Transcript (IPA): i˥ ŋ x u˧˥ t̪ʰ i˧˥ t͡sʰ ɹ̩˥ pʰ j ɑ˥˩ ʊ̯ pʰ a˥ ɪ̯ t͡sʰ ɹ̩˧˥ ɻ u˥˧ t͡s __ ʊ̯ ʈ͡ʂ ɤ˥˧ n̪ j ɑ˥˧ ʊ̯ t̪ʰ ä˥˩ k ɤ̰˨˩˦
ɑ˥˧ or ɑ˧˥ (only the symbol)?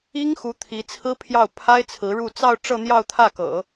ɑ˥˧